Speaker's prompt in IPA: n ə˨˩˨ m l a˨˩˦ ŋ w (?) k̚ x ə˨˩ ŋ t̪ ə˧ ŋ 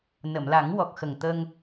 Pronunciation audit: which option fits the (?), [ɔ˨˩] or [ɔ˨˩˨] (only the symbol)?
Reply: ɔ˨˩